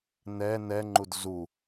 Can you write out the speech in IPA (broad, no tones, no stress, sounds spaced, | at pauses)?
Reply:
n ɛ n ɛ ŋ͡ǃ u d z u